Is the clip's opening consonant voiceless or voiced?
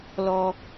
voiced